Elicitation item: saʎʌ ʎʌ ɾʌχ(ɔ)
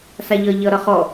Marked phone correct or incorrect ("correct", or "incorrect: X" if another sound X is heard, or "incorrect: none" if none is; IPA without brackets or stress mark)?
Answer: correct